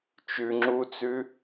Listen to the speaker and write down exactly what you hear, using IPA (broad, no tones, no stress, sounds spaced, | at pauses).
t͡ʃ ʉ ŋ͡ǁ u t͡s ʉ